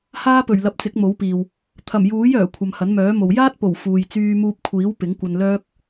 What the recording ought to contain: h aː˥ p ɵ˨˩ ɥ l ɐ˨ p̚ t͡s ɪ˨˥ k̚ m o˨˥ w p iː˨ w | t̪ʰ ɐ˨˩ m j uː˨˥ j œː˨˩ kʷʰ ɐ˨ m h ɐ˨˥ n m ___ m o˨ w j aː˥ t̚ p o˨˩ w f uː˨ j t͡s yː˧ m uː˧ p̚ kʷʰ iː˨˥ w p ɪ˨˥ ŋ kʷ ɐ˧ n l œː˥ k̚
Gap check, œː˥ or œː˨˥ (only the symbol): œː˨˥